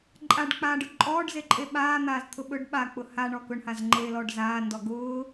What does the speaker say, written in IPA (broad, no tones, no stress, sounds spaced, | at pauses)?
ǃʼ a ɖ k͡p aː ɖ ʊ ǃʼ ɔː ɖ z e ǃʼ e ɓ aː n̪ aː z t̪ʰ ʊ ɓ ɵ ɖ ɓ a k͡p ʊ h a ɳ ɔ k ʊ ɳ h a z ŋ͡ǃ eː l ɔː ɖ z aː n d ɔ ɡ ʊː